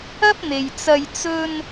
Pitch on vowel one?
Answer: high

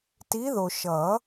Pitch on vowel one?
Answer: rising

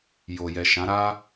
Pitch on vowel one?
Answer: low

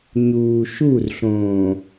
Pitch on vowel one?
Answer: low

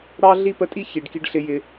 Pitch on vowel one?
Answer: high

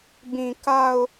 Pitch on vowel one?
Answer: low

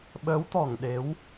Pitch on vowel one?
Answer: rising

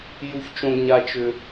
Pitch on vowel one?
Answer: high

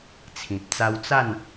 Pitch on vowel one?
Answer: low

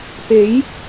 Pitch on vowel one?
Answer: rising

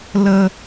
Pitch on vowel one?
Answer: high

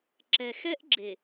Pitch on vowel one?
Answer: low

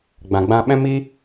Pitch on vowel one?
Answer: low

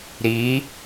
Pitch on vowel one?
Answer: rising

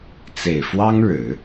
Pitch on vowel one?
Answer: low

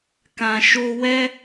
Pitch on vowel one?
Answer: low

